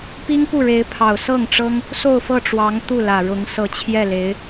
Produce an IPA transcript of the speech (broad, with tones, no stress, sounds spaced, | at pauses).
p i˥ ŋ p u˥˩ ɻ e˧˥ ɪ̯ pʰ ɑ˨˩ ʊ̯ s ɤ˥˩ ŋ ʈ͡ʂ ɤ˥ ŋ | s o˥˧ ʊ̯ f ɤ˥˩ ʈ͡ʂ w ɑ˧˥ ŋ t̪ u˥˩ l ä˨˩ ɻ ʊ˧˥ ŋ s ɤ˨˩ t͡ɕʰ j ɛ˥˩ l e˧˥ ɪ̯